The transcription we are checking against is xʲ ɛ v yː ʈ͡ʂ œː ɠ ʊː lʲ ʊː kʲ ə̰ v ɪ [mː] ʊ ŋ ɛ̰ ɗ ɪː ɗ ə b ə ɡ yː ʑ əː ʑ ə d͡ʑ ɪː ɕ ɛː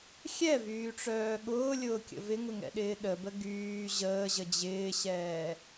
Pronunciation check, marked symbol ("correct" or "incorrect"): incorrect